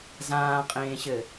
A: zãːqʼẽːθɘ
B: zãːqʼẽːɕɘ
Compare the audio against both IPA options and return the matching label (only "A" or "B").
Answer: B